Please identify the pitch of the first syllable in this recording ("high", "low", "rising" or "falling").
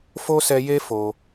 high